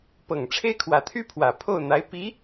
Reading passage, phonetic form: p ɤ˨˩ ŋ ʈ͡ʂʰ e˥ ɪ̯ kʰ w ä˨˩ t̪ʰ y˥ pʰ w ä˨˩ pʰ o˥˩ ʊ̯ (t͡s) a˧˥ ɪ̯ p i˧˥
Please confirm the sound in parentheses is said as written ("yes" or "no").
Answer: no